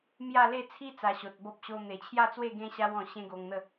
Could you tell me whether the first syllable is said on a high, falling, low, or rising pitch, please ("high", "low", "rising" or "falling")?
falling